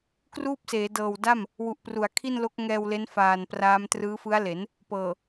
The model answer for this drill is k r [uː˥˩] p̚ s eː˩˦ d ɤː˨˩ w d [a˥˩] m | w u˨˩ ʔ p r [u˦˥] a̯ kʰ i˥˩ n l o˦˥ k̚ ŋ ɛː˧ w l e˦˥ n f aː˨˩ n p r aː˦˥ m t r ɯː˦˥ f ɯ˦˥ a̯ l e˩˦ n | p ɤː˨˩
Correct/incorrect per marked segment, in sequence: correct, correct, incorrect

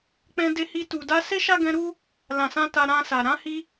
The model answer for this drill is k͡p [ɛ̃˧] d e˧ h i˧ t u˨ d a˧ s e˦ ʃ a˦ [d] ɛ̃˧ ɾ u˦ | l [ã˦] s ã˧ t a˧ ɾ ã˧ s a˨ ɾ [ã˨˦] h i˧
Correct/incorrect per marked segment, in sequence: correct, incorrect, incorrect, correct

